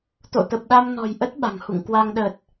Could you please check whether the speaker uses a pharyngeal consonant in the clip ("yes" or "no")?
no